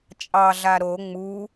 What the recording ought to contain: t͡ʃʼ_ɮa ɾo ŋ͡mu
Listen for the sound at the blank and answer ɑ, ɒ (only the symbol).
ɑ